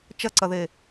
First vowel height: low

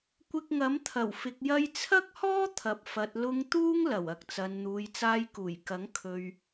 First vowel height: high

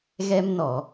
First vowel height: mid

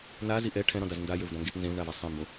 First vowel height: low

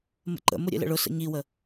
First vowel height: mid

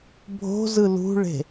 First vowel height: mid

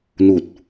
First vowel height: high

